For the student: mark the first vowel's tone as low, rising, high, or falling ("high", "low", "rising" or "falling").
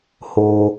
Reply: low